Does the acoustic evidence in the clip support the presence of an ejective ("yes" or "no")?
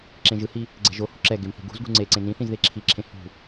no